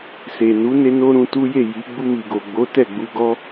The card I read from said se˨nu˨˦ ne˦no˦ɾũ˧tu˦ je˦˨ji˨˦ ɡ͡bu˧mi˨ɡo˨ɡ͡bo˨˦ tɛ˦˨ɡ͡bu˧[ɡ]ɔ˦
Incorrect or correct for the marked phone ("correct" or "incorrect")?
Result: correct